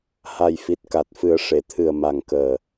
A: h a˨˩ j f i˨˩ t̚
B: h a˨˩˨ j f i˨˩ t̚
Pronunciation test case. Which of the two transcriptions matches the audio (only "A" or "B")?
A